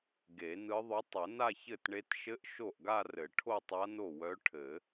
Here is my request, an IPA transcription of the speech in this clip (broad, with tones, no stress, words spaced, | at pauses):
ɡe˨˩˦nɯ˧˥ ðˤɵ˧˥ tˤɘ˨˩˦na˥˧çɘ˥˩tɳe˧˥t ʃɘ˧˥ʔ ʃo˥˩ʔɡa˥˧rɘ˨˩˦ ʈʰo˥˧tˤa˧˥ no˥˩wœ˧˥ ʈʰɘ˨˩˦